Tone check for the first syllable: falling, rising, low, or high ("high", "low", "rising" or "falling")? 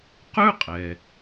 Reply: high